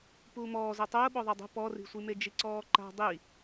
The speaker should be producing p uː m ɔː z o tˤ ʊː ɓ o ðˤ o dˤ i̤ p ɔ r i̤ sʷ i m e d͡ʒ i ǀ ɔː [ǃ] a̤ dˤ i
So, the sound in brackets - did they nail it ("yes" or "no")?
yes